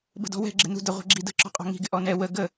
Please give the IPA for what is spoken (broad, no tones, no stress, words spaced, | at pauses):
bə̤dɔ̤wɛ̤ ɡ͡ǁɪnṳdə ʁʷɛ̤ɡ͡ǁidə̤ ǁɔ̤qʼɔ̤ŋi̤ ɡɪʔɔnɛ wə ɡə